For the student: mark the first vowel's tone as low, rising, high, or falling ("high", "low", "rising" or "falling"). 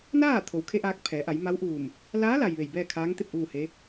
falling